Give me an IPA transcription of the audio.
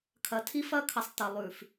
kʰ ɐ˨ tʰ i˦ f ɐ˦ kʰ ɐ˨ sˤ t ɐ˨ lˠ ʉ˨ f

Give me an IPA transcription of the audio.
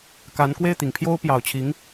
k a˧˥ n k w e˥˩ ɪ̯ t̪ i˨˩ ŋ pʰ j o˥ ʊ̯ p j ɑ˨˩ ʊ̯ t͡ɕʰ i˧˥ ŋ

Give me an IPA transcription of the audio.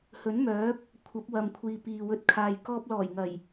h ɵ˨˥ n m œː˨˥ p̚ | kʷʰ ɐ˨˥ p̚ w ɐ˨ m kʷʰ iː˨ p iː˨ w ɵ˧ t̚ kʰ aː˨ j k ɔː˧ p̚ l ɔː˨˩ j ŋ ɐ˨˩ j

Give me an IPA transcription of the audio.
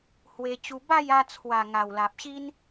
h w e˧ t͡ɕ u˧ b a˥˧ j a˧ t͡sʰ w a˨˩ ŋ a˨˩ w l a˨ p̚ ɕ i˦ n

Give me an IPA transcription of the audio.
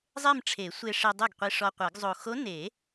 zˤ e˥˧ m ʈ͡ʂʰ e˨˩˦ sʷ e˧ ʂ i˧ dˤ e˥˩ ɡ qʷ i˧ ʂ ɔ˧ qʷ ɘ˨˩˦ ɡ zˤ o˨˩ x o˧˥ n e˨˩˦

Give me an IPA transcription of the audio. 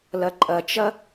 l ɐ ǃʼ ɐ t͡ʃ ɐ

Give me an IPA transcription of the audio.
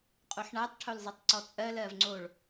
qʼ o ħ ɳ a tˤ ʈʰ o l zˤ i tˤ ǀ ɔ t͡sʼ ɜ l ɜ v ŋ͡ǀ o ɭ

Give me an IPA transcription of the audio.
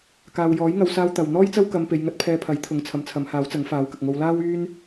k aː˨ w j ɔː˨˥ j ŋ ɐ˨˧ w s aː˧ w t̪ ɐ˨ w n̪ ɔː˥ j t͡s ɐ˥ w k ɐ˧ m p e˧ j ŋ ɐ˥ t̚ pʰ ɛː˧ pʰ ɐ˨˥ j t̪ʰ ʊ˨˥ ŋ t͡sʰ ɐ˨˥ m t͡sʰ ɐ˨˧ m h aː˨˥ w t͡s ɐ˨˥ ŋ f aː˨˥ w k ɐ˨ k̚ ŋ o˧ w l aː˥ w yː˥ n

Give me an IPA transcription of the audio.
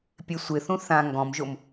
pʲ e sʷ ɪ θ ũ θ ã ŋ ɡ ɔ̃ m ʒ o m

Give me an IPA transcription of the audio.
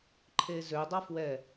ǃʰ e z ø dˤ ʌ f w ɛ

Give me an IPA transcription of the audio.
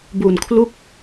b u˨˩ n kʰ l u˥˩ k̚

